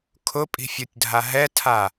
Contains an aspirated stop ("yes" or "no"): yes